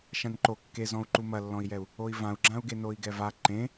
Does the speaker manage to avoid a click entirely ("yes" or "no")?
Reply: no